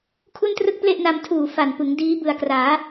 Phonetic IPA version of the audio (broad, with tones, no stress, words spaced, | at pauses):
kʰu˥˩ntrɯ˥˩k̚ple˥˩ʔna˧m tʰuː˨˩ fa˨˩npɯ˩˦ŋ diː˦˥ bɯ˨˩a̯kraː˩˦